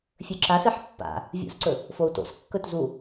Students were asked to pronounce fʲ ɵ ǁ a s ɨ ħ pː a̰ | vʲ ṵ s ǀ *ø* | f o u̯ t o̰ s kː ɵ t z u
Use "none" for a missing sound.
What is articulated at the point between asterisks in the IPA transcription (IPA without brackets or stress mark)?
ɵ